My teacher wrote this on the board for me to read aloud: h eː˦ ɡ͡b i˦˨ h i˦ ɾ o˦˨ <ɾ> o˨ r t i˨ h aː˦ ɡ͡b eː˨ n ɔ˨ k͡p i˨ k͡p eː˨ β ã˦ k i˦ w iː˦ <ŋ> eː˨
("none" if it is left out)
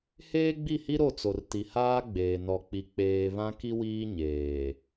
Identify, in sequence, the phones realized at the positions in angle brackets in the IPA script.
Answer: t͡s, ɲ

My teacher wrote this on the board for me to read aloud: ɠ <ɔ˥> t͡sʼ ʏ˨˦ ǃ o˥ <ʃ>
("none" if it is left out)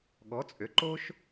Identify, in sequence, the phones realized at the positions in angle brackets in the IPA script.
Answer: ɔ˨˦, ʃ

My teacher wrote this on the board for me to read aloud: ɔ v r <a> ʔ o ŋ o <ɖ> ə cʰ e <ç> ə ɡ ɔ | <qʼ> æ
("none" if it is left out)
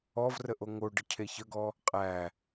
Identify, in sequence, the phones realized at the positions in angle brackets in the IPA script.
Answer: ə, ɖ, ç, qʼ

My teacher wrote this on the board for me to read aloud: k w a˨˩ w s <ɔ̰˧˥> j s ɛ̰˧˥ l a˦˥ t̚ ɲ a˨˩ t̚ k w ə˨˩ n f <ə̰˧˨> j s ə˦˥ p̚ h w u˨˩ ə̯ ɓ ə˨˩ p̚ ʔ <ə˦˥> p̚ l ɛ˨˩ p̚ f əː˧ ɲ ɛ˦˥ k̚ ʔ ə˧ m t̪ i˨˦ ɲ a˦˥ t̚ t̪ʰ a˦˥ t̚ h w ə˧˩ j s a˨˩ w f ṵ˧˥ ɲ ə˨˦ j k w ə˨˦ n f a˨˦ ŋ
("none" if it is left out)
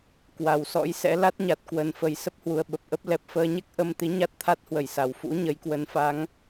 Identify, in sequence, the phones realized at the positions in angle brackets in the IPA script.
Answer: ɔ̰˧˥, ə˨˩, ə˦˥

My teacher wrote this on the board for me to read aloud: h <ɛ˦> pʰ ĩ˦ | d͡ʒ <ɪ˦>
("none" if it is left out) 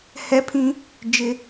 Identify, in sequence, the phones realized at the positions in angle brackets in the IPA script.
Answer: ɛ˦, ɪ˦

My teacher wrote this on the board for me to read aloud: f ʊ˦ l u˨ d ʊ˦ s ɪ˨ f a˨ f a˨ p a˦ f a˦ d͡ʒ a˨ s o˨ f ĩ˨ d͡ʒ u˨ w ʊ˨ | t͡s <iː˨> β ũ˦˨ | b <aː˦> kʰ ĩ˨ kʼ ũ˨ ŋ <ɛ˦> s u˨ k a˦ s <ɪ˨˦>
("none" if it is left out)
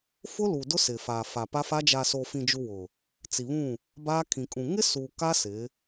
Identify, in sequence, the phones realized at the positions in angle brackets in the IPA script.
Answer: i˨, aː˦, ɪ˦, ɪ˨˦

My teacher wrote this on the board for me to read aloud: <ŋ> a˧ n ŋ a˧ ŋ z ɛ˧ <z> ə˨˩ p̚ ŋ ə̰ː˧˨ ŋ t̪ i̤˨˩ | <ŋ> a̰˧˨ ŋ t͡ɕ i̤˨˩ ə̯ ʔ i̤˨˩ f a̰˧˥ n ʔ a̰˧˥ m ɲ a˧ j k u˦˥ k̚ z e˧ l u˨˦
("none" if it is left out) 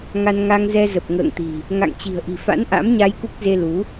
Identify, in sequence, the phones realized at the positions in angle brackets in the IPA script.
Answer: ŋ, z, ŋ

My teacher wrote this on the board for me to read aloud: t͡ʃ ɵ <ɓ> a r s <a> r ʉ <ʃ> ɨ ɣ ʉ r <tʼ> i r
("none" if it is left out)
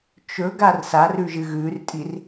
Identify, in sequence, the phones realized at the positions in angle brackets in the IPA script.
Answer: ɡ, a, ʒ, tʼ

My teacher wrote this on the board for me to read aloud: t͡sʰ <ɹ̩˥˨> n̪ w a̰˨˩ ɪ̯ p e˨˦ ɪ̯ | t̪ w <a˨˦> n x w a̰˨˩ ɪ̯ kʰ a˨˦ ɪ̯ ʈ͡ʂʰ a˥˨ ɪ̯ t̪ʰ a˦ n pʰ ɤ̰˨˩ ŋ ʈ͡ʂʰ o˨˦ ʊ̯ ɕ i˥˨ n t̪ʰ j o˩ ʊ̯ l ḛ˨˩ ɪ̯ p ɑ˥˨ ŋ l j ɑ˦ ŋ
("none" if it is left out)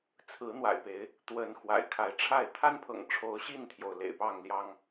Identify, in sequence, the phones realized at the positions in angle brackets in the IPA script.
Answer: ɹ̩˨˦, ə˨˦

